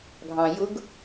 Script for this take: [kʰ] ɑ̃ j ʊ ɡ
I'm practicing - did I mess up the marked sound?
yes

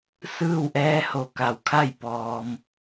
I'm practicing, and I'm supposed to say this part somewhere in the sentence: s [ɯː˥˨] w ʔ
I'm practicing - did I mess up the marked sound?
no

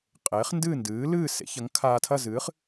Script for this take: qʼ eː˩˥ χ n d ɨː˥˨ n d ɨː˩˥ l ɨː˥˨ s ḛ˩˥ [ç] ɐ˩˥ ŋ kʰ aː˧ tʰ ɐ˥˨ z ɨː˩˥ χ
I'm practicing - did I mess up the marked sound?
no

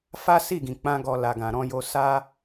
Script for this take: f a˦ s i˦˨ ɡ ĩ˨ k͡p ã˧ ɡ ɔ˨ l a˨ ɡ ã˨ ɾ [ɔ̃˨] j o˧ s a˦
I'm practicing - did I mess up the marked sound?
yes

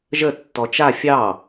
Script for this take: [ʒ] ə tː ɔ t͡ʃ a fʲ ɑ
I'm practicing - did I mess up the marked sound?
no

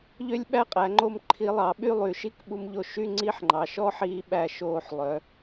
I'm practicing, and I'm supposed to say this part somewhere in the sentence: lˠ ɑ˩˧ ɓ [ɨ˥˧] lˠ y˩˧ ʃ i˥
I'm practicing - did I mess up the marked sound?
yes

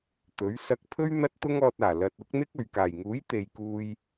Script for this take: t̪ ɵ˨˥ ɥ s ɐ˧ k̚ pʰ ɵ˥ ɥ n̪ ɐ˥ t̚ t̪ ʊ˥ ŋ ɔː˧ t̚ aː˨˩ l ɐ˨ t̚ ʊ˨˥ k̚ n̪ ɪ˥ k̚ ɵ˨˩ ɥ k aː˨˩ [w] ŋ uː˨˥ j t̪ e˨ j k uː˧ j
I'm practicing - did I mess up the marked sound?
yes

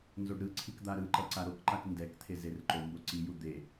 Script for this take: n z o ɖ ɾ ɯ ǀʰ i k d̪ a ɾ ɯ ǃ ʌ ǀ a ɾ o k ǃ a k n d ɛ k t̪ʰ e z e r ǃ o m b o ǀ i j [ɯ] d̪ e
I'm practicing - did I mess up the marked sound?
yes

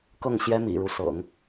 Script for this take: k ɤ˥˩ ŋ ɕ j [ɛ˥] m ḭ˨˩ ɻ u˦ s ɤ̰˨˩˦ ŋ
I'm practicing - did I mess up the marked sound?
no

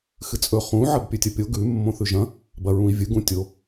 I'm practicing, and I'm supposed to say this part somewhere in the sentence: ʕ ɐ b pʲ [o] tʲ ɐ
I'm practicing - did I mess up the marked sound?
yes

